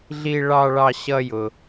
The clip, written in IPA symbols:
ɮi˧ɭɑ˧ ɭɑ˧ɕʌ˧jʊ˩

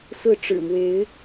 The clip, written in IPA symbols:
sɹ̩˥˩ ʈ͡ʂɻ̩˨˩ mwe˧˥ɪ̯

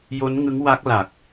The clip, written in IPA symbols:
jo˦˥nŋɯ˦˥ŋwa˦˥k̚ la˨˩k̚

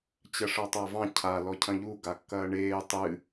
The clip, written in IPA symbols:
t͡ɕɐʂɒtˤavɑ̃ cʰa lɔcʰɐ̃ʎu ɡakːɐːɳeː tˤɨ

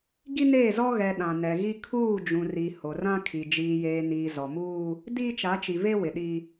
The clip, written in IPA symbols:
ɡi˦neː˦˨zɔ˦ ɣɛ˨ ɗã˨nɛ˨ɣi˦ kʰuː˦˨d͡ʒũ˨ri˨ ho˨rã˦kʰi˨ d͡ʒiː˨jeː˨niː˨ zɔ˨muː˦ | diː˦t͡ʃa˨˦t͡ʃi˨ve˦ wɪ˨ɗi˦

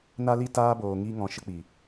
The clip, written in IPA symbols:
na˦li˦ taː˦ boː˨ŋiː˧ŋɔ̃˨ ʃə˧k͡pi˨

